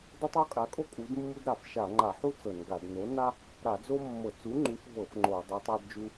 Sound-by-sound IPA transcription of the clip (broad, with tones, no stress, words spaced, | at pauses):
dɤ˥tˤo˥kʼa˨˥kʼo˥ kʼu˨˥dmːu˥d ɾa˧˩˧fʃa˧˩˧ŋ͡ǃa˧˩˧ħu˥ t͡sɤ˧˩˧nɡa˧˩˧d no˨˥na˥ | ɾa˧˩˧d͡zo˥mːɤ˧˩˧ t͡su˨˥ŋ͡ǃu˨˥fvɤ˧˩˧f ŋ͡ǃo˧˩˧ dˤu˨˥tˤa˥dd͡ʒu˥